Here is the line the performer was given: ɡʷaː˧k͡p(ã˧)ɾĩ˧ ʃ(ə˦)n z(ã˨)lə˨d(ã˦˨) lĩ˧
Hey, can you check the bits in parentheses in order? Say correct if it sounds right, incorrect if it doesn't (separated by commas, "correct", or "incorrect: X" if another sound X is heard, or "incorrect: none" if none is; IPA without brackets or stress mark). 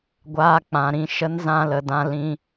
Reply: incorrect: ã˨, correct, incorrect: ã˧, incorrect: ã˧